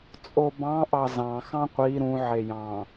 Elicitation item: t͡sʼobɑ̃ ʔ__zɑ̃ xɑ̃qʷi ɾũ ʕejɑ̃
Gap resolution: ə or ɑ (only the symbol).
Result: ɑ